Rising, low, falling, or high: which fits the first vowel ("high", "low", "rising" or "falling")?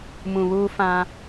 low